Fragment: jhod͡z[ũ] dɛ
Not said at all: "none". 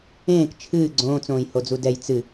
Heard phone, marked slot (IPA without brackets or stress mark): u